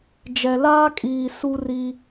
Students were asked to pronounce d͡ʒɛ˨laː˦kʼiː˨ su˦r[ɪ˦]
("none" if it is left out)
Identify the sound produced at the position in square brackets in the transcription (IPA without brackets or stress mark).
i˦